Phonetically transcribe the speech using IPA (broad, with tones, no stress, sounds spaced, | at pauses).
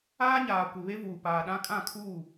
aː˦ ɲ aː˨ kʷ ɪ˨ β e˦ v uː˨ p aː˨ ɗ ã˦ kʼ ã˦˨ kʰ uː˦˨